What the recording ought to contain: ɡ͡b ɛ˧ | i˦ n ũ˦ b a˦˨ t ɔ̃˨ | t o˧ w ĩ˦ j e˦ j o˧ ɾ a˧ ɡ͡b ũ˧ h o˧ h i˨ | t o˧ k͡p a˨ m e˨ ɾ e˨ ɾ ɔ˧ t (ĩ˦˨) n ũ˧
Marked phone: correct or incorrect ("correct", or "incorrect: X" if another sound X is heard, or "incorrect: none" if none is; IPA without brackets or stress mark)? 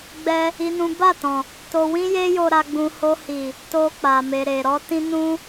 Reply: incorrect: ĩ˧